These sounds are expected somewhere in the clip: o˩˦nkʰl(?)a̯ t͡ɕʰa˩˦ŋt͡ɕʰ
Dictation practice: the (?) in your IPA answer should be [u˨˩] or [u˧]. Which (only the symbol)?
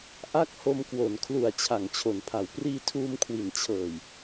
u˨˩